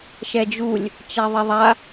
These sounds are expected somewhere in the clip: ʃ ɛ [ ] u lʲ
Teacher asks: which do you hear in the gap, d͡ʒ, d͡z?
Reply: d͡ʒ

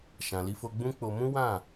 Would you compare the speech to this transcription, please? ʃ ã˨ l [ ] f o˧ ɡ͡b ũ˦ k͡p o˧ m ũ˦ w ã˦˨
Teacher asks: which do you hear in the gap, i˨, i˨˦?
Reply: i˨˦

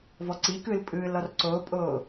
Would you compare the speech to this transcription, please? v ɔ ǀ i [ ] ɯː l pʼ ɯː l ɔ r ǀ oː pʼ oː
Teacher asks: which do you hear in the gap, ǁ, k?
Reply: k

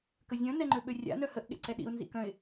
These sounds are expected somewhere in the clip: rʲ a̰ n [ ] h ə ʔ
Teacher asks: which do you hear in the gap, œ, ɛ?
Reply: œ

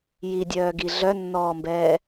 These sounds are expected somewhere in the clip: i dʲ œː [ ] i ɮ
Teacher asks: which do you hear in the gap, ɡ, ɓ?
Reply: ɡ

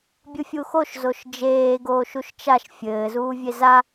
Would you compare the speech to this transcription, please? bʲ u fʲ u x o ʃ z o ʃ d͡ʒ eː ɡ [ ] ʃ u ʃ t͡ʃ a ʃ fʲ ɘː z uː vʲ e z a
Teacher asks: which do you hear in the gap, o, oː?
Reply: oː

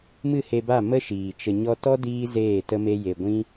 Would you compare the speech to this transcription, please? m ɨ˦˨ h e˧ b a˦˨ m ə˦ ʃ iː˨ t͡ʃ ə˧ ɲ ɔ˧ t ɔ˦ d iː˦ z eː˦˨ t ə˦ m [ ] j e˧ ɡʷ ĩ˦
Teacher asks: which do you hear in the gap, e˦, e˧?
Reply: e˦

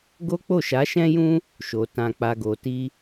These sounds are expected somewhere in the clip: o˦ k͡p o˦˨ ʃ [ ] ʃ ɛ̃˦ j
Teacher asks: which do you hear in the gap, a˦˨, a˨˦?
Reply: a˨˦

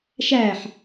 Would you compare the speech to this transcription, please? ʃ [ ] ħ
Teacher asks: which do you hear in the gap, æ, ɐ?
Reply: æ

